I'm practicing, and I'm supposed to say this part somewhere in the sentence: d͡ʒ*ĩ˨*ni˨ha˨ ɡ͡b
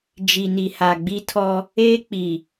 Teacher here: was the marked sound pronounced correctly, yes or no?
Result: no